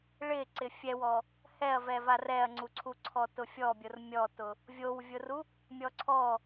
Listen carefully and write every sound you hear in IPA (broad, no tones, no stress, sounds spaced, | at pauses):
ɭ ɪ ǀ ɪ fʲ ɛ w ɔ | h ɛ ɐ̯ v ɛ v a r ɛ ɐ̯ ŋ͡ǀ u ǀʰ u ǀʰ ɔ t ʊ fʲ ɔ bʲ ʊ r mʲ ɔ t ʊ | vʲ o w vʲ ʊ r u | mʲ ɔ ǀʰ ɔ